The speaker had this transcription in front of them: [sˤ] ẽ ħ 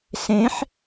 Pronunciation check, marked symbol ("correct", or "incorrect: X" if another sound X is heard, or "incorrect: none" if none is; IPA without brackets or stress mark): incorrect: s